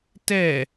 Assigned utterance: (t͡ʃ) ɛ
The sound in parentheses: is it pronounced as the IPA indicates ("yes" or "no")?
no